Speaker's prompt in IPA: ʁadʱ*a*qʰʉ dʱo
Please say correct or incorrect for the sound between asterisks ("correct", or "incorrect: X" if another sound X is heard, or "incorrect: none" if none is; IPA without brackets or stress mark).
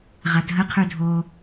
incorrect: ə